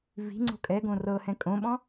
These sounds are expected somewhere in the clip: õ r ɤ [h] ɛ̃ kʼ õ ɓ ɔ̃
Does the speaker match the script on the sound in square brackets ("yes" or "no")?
yes